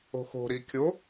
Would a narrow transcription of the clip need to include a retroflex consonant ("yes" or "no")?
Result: no